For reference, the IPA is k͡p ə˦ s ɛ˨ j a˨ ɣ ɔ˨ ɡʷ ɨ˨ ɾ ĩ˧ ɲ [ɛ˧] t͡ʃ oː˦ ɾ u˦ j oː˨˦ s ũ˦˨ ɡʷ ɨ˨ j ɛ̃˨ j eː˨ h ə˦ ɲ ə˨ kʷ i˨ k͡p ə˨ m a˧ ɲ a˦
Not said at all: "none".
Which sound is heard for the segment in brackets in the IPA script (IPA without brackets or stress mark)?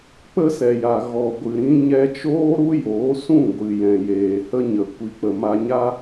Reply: ɛ˧